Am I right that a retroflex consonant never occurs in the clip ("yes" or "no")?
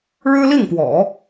no